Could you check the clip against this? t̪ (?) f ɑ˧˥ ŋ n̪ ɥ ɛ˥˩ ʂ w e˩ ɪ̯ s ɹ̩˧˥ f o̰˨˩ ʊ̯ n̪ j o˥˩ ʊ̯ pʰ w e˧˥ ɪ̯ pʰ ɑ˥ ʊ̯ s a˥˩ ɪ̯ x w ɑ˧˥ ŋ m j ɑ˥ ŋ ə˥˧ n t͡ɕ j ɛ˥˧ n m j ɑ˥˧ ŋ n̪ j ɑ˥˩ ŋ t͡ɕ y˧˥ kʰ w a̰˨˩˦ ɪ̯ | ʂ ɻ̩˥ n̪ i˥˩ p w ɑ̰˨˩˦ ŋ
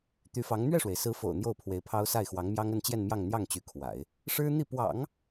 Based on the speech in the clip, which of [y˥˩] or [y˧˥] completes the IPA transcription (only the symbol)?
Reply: y˧˥